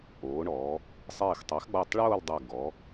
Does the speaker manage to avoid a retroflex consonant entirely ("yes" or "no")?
no